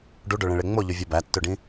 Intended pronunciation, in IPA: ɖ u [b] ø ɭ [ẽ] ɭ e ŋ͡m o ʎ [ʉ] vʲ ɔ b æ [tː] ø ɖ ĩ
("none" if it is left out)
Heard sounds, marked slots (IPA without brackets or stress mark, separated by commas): ɖ, ẽ, ʉ, tː